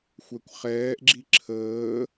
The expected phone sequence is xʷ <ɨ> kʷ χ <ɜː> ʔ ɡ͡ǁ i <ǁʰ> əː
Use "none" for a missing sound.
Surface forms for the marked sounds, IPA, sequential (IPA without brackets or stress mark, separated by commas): ɛ, ɛː, ǁʰ